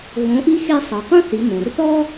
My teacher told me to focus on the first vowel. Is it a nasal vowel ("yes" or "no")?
yes